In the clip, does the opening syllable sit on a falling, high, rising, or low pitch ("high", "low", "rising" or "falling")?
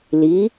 rising